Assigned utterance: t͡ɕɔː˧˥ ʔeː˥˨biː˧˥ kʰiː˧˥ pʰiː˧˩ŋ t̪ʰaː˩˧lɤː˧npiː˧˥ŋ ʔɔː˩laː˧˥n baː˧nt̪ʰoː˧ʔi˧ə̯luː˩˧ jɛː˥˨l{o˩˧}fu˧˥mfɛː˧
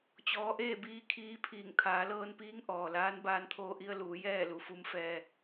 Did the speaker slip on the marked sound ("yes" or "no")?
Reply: yes